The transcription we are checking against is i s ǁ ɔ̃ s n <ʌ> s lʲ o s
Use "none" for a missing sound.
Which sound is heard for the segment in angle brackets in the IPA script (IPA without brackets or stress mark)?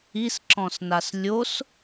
a